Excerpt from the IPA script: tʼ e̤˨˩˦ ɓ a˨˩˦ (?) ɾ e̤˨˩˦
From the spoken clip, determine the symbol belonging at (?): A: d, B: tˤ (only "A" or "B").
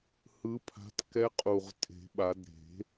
A